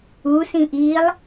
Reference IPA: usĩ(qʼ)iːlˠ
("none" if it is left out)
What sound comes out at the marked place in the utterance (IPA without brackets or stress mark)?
ʔ